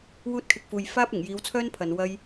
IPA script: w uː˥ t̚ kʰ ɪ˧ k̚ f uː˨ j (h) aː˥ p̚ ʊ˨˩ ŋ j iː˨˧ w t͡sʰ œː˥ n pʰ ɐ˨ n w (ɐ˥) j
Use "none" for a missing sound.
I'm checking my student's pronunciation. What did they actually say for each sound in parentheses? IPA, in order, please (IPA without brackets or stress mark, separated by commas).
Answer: f, ɐ˥